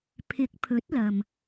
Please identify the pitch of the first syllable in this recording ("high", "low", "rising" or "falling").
rising